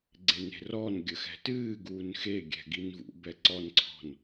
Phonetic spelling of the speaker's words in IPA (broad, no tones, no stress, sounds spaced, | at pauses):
ɡ͡ǀ e n e̤ r ɔ n ɡʲ ə x ɛ̤ t ɨː ɡ uː n x e ɡʲ ɛ̤ ɡ i n v ṵ b ɛ ǀ ɔ n ǀʰ ɔ̤ n